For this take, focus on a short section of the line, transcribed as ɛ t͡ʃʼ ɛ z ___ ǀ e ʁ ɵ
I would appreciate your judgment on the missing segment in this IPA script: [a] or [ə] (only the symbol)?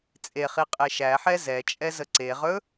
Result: ə